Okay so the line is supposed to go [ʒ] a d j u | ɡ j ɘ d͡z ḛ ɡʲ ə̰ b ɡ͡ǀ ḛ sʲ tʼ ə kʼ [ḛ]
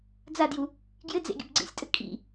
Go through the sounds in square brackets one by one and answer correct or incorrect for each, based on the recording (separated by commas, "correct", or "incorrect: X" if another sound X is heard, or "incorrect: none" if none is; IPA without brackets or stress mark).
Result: incorrect: d͡z, incorrect: ḭ